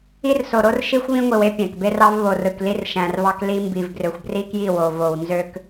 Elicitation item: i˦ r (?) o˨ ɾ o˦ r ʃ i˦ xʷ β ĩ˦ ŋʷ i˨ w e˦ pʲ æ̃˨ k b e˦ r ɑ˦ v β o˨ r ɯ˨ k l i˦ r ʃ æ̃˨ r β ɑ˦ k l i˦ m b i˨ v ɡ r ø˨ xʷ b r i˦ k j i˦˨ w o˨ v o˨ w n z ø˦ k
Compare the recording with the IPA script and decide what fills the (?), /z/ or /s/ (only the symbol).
s